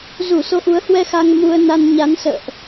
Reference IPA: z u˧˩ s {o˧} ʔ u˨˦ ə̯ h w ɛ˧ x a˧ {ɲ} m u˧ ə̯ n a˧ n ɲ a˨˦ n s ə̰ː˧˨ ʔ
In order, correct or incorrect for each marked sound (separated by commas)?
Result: correct, incorrect